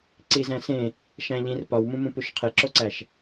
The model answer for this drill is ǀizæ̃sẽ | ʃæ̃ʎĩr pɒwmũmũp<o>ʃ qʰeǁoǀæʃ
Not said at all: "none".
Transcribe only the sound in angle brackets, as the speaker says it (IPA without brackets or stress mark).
u